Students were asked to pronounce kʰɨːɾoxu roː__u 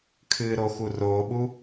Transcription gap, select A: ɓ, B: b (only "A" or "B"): A